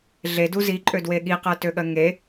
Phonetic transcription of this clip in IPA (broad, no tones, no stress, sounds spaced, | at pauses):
ɮ e d u z i ǃʼ ø d w e ɠ i q ɜ t ø ɠ ɜ ŋ e